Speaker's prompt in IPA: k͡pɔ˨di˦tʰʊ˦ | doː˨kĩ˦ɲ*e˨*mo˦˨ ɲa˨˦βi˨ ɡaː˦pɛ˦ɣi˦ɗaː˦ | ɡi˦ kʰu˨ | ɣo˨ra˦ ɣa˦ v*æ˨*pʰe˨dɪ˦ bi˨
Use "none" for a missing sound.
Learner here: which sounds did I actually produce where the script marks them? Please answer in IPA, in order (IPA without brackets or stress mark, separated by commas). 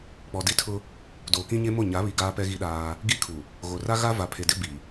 e˦, a˨